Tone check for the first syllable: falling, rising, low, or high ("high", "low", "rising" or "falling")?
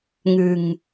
low